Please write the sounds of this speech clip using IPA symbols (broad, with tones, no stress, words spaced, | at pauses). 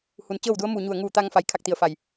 hu˩nt͡ɕɤː˥˨wdu˧˥ə̯ mu˧˩ɲu˧˩ə̯ ŋuː˧˩t̪a˧ŋfa˩˧j kʰa˥˨k̚t̪i˧˩ə̯fa˧˩j